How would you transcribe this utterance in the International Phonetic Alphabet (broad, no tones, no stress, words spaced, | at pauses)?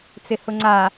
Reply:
t͡sɪhʊŋ͡ǀa